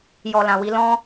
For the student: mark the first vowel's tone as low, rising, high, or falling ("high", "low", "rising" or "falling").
low